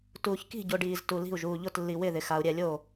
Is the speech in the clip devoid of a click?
yes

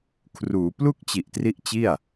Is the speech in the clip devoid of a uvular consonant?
yes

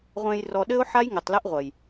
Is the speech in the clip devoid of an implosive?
no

